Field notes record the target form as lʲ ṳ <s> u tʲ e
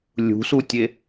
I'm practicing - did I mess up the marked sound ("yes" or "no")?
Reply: no